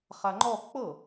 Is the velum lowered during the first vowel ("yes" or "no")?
no